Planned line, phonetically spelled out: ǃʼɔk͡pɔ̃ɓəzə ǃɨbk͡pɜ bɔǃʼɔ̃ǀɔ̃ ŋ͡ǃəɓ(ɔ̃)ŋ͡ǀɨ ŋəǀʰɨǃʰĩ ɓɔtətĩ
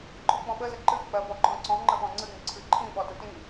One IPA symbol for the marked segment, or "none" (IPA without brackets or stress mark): ɔ̃